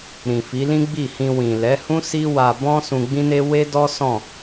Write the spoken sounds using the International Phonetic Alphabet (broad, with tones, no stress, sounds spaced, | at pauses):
ɾ ĩ˨ f i˨˦ l ĩ˦ ɡ͡b i˦˨ h ĩ˧ w ĩ˨ l ɛ˨˦ h ũ˦ s i˦ w a˧ b ɔ̃˦ s ũ˧ ɡ͡b ĩ˦ n e˦ w e˦ d ɔ˦ s ɔ̃˦˨